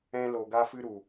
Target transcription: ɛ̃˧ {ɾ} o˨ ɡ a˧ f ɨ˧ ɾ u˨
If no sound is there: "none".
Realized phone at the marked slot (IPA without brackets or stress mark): l